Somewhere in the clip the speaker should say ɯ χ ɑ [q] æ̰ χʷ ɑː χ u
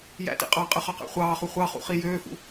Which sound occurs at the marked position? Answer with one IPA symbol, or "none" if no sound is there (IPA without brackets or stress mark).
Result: q